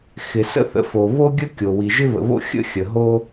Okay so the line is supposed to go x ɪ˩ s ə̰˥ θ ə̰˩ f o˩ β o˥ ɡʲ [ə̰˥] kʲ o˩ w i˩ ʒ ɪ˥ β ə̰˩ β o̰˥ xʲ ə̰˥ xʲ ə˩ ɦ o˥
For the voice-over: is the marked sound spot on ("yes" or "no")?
no